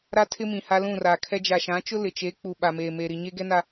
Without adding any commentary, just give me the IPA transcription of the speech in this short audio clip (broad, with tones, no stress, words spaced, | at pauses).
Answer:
ɾa˦tʰɪ˦ mĩ˨ ha˦lũ˦˨ra˨kʰɛ˦ d͡ʒa˨ʃã˨˦t͡ʃʊ˦ lɪ˨t͡ʃe˨˦k͡pu˨ ɓa˨meː˨ meː˨ɾi˨ɲe˦ ɡɛ˦na˨